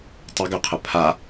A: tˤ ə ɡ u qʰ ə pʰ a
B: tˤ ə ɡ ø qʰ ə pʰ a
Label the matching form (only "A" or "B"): B